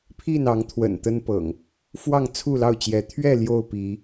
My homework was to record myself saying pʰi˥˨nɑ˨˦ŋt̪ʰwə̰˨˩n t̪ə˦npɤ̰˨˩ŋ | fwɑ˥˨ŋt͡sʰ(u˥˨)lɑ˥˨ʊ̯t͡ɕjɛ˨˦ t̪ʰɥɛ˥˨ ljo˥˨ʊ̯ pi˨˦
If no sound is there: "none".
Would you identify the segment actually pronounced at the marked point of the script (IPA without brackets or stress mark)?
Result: u˥˨